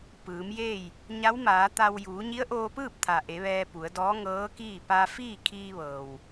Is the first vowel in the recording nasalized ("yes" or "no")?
no